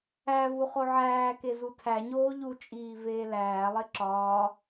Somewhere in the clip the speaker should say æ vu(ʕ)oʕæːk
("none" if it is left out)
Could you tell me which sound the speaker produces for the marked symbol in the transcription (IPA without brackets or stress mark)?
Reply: χ